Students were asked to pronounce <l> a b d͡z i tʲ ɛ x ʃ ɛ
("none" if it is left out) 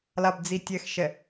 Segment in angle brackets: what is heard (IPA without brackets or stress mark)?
l